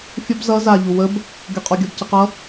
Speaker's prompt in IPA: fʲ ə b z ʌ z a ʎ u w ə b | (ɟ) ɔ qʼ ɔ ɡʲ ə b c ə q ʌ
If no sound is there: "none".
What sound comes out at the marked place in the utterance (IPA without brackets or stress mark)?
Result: ɡʲ